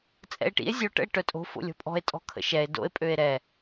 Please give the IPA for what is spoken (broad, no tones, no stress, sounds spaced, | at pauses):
t͡sʼ ɛ̰ e̯ ʈ ḭ e̯ zʲ o ʈ ə̰ e̯ ʈ œ tʼ o̤ f o̰ lʲ ɔ̤ pʼ ɔ̤ e̯ tʼ ɔ̤ kʰ ə̰ ʃ ɛ e̯ d o̰ e̯ pʼ ø e̯ ɾ ɛ